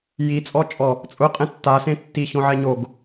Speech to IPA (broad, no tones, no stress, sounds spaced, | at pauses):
j i t͡sʼ ɔ t͡ʃʼ ɔ | t͡sʼ ʊ qʼ ẽ tː a s ẽ tː i ç õ ʕ ɛ ɲ o ɡ